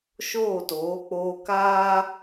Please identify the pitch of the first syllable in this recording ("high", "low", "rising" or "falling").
falling